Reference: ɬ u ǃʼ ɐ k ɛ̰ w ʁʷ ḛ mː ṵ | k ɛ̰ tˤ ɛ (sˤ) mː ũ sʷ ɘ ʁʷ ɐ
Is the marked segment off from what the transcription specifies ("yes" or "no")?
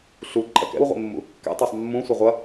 no